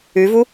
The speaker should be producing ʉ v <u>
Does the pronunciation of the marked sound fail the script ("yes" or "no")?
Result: no